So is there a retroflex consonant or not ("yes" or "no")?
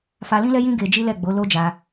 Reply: no